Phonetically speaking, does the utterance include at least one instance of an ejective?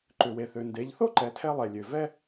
no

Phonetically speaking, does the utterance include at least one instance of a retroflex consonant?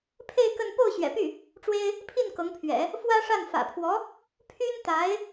yes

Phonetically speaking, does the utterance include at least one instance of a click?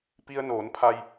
no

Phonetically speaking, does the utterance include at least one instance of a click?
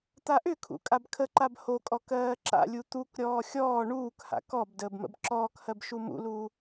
yes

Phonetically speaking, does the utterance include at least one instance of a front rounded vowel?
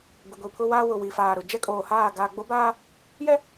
no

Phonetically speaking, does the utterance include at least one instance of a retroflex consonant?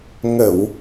no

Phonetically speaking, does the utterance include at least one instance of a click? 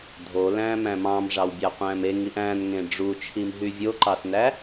yes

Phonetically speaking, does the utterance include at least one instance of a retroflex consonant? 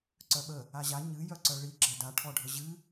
yes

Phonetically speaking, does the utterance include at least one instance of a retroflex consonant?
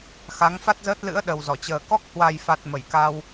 no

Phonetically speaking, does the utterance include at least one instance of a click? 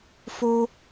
no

